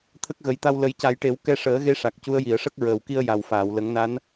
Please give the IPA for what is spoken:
t̪ʰə˦˥k̚ɣə˨˩˦jt̪a˧w lə˨˩˦jca˨˩˦jʈe˨˩˦w kɛ˧ʂəː˨˩˦ɣe˧ ʂa˨˩k̚cu˧˥ə̯ ji˨˩˨ə̯ʂə˦˥k̚ ɹəː˨˩wki˧ə̯ ja˨˩wfaː˨˩˨wlə˨˩˦ŋna˧˥n

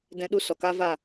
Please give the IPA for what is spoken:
dɛ̃˦ɗu˦ sɔ˨ka˦ va˦˨

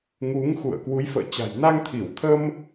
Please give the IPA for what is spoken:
ŋu˨˦ŋxṵ˧˨ə̯ kwu˨˦jfə̰ː˧˨t͡ɕa̤˨˩j na˧ŋt̪ʰi˧˩wt̪ʰə˧m

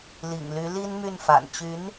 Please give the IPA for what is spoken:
lḭ˨˩ŋly˧˥ li˥nmy˥˩nfa̰˨˩n t͡ɕy˧˥n

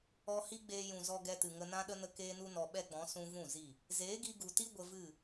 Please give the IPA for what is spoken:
ɔ˧hi˦ɡ͡beː˧jũ˨ zɔ˧ɡɛ˧tɨ˨ŋə˧ nã˦ɗə˦nə˦ keː˦nu˦nɔ˧ ɓɛ˦ɡ͡bɔ̃˨˦ sũ˦ vũ˦˨zi˦˨ | zeː˨˦ɡi˧ɡu˨ti˦ ɡʷə˧vɨ˦˨

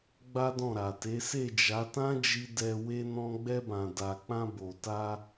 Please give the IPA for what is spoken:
ɡ͡ba˦dɔ̃˦˨ɾa˨te˨˦ se˦˨d͡ʒa˨˦ tã˦d͡ʒi˧ dɛ˧ we˧ nɔ̃˧ɡ͡bɛ˧bã˨da˨ k͡pã˧bo˨ta˧

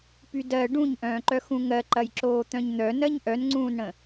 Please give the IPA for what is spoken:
pydɜ ɖũɲʔœ̃ːǃœ xũŋɜ ǃɐjǁoːt̪œ̃ɲn̪œ nɜɲʔœnŋ͡ǀũːnɽə̃

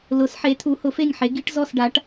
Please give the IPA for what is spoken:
lʊ˩˥sħe˩˥ t̪ʰu˩˥hʊ˩˥fe˥˩ŋ ħe˩˥ɡi˩˥ʈ zɔ˥˩sɖa˩˥ʈ

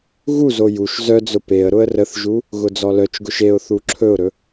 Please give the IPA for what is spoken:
ɣuzo juʃ zœd͡zʊ peə̯ ɾʊə̯rəθʒu | ɣʊd͡zɔlœt͡ʃɡʊʃ eʊ̯θu ǁʰɵʊ̯ɾɵ

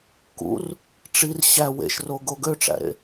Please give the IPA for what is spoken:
kṵr | ʈ͡ʂir ɕæ wḛʃro ɡoɡøʈ͡ʂæ̰ɾḛ

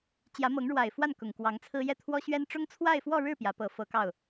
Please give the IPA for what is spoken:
t͡ɕjä˧˥mɤ˧˥ŋɻwa˨˩ɪ̯fwa˥˩n kʊ˨˩ŋkwɑ˧˥ŋt͡sʰɹ̩˥ jɛ˥˩t̪ʰwɔ˥ɕɥɛ˥n ʈ͡ʂʊ˥ŋ t͡sʰwa˥˧ɪ̯fwɔ˥˧ɻɻ̩˥˩ pjä˧˥pɤ˧˥fɤ˧˥kɑ˥˩ʊ̯

